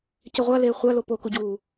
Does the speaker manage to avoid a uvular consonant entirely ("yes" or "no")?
no